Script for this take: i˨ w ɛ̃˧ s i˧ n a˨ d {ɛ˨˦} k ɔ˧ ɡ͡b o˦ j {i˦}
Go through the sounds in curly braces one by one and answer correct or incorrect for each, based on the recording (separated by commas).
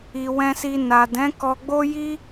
incorrect, correct